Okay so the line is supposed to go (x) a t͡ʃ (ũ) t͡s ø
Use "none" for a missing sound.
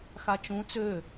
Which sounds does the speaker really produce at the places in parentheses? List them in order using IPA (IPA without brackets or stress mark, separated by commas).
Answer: x, ũ